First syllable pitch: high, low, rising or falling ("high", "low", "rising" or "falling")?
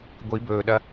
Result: rising